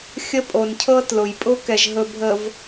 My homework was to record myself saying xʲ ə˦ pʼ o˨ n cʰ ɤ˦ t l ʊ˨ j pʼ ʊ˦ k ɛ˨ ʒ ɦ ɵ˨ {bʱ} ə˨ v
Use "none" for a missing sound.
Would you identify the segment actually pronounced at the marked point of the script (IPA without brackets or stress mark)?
bʱ